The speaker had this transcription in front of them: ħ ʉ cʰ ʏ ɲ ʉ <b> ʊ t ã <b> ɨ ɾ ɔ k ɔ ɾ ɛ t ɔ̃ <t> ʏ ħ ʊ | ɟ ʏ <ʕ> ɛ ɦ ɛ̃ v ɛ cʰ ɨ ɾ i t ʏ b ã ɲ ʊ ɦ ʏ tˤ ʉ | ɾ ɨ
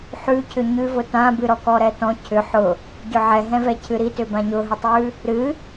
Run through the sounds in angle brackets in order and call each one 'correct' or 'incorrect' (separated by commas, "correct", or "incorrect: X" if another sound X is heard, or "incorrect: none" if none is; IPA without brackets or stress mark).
incorrect: v, correct, incorrect: cʰ, correct